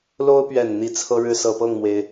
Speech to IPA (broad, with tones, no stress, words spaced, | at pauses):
lo˦ʊ̯pɥɛ˨˩n n̪i˨˦t͡sʰɤ˦ɻɻ̩˦ sɤ˨˩pɤ˥˨ŋmwe˩ɪ̯